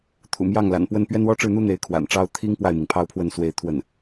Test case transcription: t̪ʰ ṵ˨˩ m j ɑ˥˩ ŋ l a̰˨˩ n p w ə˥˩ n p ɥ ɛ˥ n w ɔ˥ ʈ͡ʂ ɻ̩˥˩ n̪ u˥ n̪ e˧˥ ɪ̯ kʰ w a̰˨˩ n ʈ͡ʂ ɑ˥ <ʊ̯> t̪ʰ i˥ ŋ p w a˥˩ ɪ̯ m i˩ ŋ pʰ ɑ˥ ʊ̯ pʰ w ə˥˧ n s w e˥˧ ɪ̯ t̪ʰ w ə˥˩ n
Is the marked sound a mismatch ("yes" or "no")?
no